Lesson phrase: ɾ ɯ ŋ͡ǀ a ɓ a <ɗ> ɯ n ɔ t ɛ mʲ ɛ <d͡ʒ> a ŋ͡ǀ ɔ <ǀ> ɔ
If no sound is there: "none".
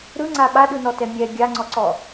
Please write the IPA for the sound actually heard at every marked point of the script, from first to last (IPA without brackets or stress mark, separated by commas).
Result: ɗ, ɡʲ, ǀ